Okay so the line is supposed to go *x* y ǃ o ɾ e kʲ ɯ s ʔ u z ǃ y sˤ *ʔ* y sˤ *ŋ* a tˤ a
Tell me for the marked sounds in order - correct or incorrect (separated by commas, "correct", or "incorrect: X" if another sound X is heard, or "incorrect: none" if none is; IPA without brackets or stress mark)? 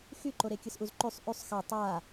correct, correct, incorrect: x